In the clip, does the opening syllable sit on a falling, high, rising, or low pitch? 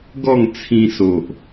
falling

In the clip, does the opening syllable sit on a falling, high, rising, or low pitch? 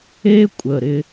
high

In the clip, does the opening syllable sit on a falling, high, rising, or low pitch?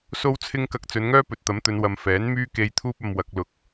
high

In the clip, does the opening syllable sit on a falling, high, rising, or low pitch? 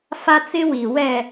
high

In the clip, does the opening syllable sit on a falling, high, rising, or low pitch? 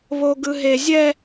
high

